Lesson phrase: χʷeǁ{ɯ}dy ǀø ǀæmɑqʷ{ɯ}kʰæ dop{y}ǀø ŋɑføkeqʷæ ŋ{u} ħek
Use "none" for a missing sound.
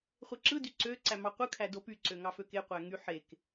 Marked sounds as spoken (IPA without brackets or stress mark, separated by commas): ɯ, ɯ, y, y